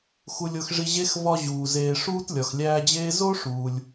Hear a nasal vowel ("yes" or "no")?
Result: no